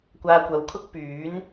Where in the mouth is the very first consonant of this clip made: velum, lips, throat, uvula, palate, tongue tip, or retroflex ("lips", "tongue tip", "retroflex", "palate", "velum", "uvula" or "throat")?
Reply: velum